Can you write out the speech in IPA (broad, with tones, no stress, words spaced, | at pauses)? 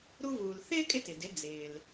ɾu˧vuː˩l θɪː˥ kʼɪ˥tɪ˩dɪ˩˥ d͡zɪː˩l